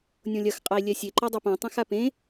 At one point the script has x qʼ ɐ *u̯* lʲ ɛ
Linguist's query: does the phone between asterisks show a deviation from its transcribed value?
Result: yes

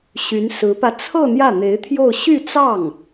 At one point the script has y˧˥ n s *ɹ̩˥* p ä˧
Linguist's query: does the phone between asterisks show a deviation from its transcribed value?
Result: yes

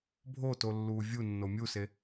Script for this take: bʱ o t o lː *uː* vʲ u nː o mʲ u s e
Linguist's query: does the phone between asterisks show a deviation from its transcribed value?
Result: no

